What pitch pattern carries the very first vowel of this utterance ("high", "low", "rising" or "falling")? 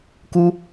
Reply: high